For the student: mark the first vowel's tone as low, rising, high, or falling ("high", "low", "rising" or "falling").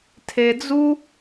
low